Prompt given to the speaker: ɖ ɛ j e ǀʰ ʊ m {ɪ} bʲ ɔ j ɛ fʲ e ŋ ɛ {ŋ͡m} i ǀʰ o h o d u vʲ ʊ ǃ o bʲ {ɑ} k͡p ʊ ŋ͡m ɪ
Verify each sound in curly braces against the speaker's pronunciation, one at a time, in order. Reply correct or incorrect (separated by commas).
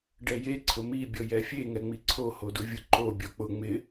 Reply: incorrect, correct, incorrect